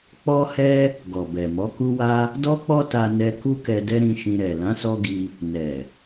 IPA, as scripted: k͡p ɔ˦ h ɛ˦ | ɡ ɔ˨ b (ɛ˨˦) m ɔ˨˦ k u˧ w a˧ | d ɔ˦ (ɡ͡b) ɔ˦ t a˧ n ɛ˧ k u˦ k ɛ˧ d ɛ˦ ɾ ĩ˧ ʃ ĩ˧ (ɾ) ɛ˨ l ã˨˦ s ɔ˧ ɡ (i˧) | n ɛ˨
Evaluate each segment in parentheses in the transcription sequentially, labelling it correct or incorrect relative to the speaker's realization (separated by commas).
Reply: incorrect, incorrect, correct, correct